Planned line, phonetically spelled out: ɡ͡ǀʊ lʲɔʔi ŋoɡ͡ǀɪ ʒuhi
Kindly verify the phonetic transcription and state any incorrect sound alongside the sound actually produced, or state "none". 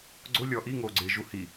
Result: none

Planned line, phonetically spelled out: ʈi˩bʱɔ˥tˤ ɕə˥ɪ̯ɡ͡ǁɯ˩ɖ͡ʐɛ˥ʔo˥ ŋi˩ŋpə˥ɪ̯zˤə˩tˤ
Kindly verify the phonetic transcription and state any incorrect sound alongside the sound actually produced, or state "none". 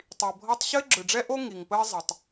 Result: ʈ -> tˤ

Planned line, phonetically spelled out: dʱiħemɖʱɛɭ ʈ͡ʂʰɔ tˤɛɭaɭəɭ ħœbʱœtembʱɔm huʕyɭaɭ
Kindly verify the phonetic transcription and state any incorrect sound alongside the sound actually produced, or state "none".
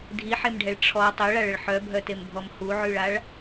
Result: none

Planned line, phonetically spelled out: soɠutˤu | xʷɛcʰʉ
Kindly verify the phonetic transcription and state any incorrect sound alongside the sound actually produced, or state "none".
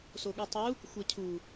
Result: ʉ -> u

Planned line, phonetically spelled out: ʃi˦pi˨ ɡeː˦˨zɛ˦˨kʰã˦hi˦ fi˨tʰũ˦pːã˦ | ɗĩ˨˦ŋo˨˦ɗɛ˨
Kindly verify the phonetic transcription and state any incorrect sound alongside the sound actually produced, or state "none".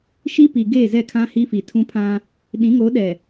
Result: pː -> pʰ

